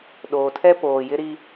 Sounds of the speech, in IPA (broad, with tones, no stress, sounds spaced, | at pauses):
ɗ oː˨ tʰ ɛ˦ p oː˨ j ɪ˦ ɾ i˦